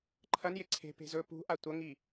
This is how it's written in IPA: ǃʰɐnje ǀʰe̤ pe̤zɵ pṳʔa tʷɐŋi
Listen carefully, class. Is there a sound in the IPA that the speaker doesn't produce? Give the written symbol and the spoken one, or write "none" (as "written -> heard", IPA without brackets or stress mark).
none